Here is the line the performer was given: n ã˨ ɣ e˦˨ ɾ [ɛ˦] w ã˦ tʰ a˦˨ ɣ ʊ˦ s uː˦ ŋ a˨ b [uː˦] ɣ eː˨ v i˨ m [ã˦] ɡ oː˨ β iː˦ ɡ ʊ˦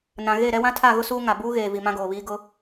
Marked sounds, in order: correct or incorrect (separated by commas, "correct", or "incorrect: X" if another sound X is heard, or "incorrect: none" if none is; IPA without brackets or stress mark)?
correct, correct, correct